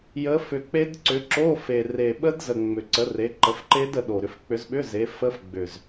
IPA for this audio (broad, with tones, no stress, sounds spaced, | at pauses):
j ə˨˦ f ʏ˨˩ k͡p e˦˥ d ǀ ʏ˨˦ ǁ o˧˥˧ f e˨˩ r e˨˩ ɓ ə˦˥ d z ə˨˩ ŋ͡m ʏ˨˩ ǀ ə˨˦ r e˨˦ ǃ ə˨˦ f ǃ e˦˥ d ə˨˦ ɗ o˨˩ ɾ ʏ˨˦ f k͡p ʏ˨˦ z ɓ ʏ˧˥˧ z e˨˦ f ə˦˥ f ɡ͡b ʏ˨˩ z